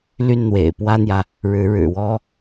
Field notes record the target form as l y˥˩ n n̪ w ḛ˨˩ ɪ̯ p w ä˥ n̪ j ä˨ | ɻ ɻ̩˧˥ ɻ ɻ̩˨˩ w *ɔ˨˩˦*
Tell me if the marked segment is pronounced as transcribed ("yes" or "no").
no